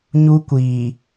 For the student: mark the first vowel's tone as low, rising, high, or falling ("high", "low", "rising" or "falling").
high